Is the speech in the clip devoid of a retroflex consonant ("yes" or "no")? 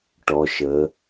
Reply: no